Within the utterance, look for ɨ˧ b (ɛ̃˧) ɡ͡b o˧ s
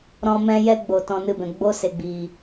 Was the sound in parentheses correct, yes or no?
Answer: no